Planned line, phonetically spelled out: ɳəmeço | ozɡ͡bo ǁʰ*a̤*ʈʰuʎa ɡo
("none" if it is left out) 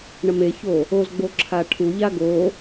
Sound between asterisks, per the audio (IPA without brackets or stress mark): a